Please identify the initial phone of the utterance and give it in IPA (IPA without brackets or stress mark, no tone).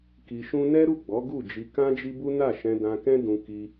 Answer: k